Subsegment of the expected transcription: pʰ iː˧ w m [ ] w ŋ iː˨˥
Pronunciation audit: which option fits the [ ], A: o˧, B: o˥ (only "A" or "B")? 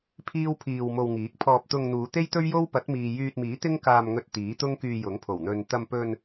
A